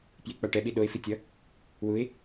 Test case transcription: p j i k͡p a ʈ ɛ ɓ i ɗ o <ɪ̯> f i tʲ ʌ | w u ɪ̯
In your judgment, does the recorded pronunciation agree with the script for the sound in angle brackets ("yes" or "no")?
yes